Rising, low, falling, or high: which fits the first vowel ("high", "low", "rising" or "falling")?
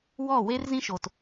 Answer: falling